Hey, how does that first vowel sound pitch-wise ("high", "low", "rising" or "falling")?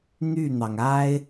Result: falling